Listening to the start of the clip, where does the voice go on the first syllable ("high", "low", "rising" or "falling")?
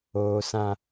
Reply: high